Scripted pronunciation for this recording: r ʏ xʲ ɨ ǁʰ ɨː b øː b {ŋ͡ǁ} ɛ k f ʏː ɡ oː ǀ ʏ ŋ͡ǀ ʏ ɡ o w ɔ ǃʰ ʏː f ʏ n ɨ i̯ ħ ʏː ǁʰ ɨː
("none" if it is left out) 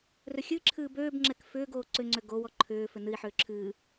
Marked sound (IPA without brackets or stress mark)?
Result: ŋ͡ǁ